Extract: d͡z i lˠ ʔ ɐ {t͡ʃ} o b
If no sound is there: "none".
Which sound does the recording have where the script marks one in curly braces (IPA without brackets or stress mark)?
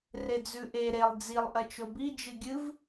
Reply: t͡ʃ